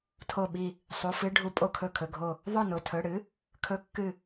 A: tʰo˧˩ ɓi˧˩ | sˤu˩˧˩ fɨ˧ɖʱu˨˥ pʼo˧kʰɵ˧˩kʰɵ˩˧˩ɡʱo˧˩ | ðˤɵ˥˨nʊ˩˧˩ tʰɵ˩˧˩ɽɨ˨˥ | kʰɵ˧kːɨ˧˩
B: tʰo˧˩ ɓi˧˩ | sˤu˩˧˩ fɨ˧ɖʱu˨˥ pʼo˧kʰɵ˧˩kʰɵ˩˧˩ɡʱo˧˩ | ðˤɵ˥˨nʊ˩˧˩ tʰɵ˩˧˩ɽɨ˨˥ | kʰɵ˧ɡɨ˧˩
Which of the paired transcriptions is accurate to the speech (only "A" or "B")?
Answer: A